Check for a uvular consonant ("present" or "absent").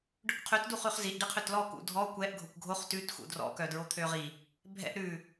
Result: present